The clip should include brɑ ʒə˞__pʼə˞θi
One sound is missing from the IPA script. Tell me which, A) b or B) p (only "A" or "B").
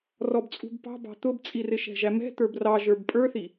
A